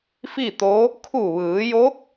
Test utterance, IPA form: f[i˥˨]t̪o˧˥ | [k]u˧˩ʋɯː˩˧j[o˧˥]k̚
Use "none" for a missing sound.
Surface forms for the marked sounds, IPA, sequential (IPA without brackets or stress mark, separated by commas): i˥˨, kʰ, o˧˥